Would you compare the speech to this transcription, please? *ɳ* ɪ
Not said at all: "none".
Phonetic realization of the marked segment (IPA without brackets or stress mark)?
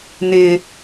n